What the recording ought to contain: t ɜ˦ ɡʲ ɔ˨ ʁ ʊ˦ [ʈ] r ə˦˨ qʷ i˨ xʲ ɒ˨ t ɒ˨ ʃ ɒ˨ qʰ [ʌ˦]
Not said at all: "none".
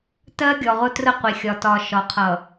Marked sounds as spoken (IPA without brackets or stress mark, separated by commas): t, ʌ˨